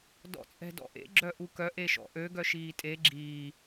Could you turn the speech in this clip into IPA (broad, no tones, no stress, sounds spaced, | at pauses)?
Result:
d ɔ̰ t͡sʼ ɛ̤ d ɔ̰ ʔ ḛ ɡ͡ǁ œ ʔ u k œ ʔ e ʃ ɔ̰ ʔ ø ɡ œ ʃ iː tʼ e ɡ͡ǁ iː